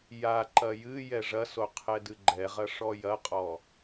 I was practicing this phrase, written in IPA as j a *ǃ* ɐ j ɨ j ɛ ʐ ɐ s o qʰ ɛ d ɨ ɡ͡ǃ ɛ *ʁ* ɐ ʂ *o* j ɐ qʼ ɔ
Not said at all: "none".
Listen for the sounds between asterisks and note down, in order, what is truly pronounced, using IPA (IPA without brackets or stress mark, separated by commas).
ǃ, ʁ, ɔ